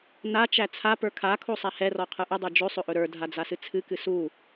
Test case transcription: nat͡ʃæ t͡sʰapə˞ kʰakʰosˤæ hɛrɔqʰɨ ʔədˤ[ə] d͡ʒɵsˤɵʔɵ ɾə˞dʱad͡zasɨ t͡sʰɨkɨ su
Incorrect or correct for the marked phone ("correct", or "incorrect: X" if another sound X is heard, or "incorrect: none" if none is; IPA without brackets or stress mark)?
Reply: incorrect: ə˞